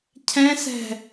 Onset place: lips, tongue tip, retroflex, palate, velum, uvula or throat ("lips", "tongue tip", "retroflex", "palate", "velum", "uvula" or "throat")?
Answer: palate